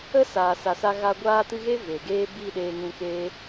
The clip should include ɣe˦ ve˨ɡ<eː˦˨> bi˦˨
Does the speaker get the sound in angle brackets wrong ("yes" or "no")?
yes